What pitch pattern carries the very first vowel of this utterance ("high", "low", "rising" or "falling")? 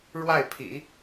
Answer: falling